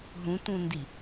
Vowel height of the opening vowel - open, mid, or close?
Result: close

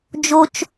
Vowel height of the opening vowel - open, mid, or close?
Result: mid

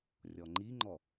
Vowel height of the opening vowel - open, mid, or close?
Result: mid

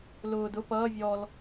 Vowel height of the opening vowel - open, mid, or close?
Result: close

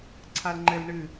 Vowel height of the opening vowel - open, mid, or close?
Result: open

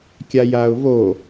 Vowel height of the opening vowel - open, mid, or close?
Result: open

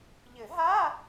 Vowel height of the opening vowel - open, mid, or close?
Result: mid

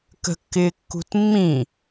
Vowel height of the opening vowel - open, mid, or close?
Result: mid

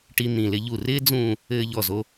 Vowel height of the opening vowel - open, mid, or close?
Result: close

